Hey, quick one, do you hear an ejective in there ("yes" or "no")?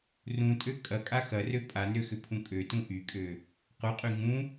yes